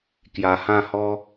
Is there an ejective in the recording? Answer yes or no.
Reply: no